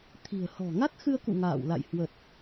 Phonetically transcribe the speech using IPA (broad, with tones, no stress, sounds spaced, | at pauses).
t̪ʰ i̤˨˩ ə̯ h ɔ̤˨˩ ŋ a˦˥ t̚ x ɨ˧ ə̯ k ṵ˧˨ ŋ a̰ː˧˨ w l a̰˧˨ j h w ə˨˩ t̚